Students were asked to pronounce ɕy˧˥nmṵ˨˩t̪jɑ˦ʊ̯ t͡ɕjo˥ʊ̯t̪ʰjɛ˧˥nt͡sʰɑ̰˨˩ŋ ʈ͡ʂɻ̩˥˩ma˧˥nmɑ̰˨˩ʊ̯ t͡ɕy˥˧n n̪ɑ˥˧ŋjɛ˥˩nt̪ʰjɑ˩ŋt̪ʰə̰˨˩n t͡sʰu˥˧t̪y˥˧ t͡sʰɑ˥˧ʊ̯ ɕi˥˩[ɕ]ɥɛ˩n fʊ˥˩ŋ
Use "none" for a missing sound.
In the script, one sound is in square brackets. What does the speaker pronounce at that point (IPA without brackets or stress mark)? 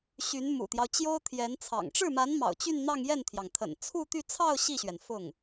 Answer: ɕ